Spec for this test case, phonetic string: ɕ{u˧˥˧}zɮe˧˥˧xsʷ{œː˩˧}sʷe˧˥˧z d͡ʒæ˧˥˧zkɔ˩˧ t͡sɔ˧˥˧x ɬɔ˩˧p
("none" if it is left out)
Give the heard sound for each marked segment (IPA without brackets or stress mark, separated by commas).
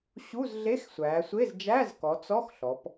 u˧˥˧, æː˩˧